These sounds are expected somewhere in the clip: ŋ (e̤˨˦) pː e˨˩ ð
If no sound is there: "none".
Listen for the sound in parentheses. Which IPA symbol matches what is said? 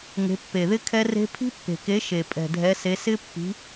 e̤˨˦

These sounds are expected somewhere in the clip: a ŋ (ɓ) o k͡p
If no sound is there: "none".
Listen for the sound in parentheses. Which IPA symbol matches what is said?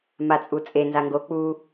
ɡ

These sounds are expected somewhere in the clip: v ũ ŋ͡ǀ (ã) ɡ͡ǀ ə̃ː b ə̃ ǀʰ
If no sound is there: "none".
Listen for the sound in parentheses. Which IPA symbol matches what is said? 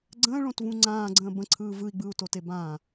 ãː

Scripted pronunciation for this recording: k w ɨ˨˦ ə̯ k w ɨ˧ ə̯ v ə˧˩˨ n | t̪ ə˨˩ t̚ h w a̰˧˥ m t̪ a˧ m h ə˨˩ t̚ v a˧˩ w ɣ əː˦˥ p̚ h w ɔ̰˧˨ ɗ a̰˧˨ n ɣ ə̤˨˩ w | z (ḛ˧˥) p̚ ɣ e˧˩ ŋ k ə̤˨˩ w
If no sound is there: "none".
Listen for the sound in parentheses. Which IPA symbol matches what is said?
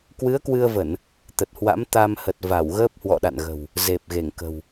e˨˩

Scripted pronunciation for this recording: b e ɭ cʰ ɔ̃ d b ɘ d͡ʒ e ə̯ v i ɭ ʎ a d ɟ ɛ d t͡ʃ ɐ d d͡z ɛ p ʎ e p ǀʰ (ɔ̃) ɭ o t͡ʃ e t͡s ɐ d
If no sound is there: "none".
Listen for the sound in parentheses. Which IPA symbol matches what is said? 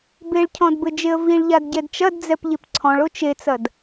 ɔ̃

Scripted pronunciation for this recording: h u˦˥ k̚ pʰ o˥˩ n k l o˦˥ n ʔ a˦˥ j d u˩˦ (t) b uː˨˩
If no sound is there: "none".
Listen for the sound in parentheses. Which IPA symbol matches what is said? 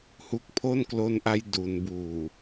n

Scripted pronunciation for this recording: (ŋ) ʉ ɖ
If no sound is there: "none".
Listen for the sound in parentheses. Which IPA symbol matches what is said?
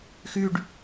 x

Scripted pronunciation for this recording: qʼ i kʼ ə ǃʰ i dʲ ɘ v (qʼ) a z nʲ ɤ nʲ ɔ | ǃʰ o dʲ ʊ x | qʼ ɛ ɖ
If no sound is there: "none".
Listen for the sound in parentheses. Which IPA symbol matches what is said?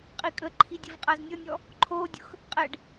qʼ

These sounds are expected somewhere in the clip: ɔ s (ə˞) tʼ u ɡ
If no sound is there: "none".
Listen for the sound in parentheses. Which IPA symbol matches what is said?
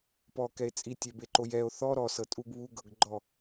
ɤ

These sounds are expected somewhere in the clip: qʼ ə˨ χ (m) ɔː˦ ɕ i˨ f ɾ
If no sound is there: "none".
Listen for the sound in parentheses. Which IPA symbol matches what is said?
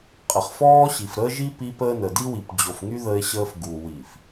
f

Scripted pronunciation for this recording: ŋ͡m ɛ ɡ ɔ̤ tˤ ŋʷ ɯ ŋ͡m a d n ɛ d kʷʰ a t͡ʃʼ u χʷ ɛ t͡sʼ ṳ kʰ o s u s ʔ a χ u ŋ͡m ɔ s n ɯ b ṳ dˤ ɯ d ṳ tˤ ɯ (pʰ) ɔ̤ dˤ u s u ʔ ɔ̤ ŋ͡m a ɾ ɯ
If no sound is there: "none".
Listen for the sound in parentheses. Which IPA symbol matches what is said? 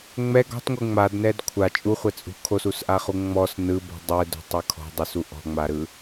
kʰ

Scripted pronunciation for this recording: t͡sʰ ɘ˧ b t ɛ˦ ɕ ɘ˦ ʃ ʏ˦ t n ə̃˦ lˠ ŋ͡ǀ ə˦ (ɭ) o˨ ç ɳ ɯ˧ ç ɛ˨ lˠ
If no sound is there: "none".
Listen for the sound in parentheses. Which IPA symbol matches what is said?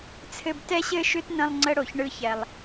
ɽ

